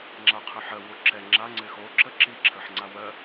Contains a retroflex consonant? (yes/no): no